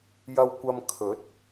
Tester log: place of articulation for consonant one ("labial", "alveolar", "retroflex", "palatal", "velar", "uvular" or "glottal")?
palatal